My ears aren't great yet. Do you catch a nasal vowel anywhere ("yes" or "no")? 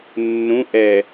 yes